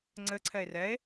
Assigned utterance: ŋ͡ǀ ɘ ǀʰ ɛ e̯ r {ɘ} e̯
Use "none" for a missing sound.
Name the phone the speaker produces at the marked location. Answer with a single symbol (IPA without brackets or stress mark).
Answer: ɛ